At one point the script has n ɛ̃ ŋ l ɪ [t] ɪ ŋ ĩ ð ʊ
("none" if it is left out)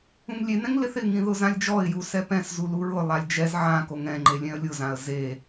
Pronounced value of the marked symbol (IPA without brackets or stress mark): θ